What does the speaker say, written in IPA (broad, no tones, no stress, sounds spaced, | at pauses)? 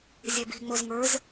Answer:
zʲ ɛ b i̤ ŋ͡m o z ŋ ə˞ z